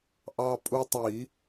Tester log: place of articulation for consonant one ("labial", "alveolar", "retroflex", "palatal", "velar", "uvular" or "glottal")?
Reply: glottal